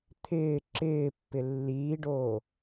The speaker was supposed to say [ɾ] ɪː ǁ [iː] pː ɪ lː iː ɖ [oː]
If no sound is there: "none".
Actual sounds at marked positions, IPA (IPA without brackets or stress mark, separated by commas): t̪ʰ, ɪː, oː